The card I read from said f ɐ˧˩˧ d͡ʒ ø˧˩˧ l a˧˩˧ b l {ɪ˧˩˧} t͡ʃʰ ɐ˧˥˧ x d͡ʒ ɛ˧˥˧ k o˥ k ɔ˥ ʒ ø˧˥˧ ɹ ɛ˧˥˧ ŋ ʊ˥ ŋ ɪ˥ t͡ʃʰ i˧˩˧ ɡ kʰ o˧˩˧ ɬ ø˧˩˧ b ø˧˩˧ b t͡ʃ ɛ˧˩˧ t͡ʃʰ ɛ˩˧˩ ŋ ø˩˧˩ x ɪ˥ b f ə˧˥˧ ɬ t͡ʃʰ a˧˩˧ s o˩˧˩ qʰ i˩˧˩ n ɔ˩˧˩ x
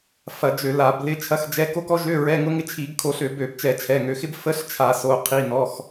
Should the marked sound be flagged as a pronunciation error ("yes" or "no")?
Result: yes